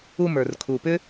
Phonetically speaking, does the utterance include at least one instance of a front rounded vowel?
yes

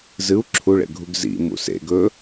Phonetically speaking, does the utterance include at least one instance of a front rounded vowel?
no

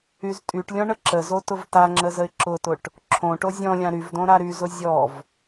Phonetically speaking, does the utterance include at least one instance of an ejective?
yes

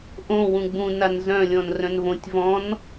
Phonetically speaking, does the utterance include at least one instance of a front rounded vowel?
yes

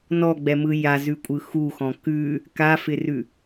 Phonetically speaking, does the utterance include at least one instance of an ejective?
yes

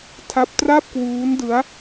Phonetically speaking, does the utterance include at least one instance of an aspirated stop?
yes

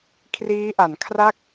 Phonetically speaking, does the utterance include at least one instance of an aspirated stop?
yes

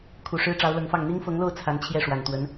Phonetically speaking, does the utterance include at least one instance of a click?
no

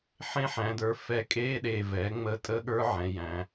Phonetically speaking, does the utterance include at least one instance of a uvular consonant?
no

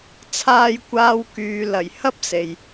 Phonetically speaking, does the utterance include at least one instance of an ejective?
no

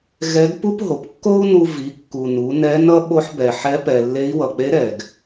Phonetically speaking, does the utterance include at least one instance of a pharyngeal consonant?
yes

